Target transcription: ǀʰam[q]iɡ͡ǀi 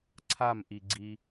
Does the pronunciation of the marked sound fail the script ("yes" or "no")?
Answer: yes